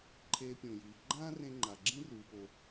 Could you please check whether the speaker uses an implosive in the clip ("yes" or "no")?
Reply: no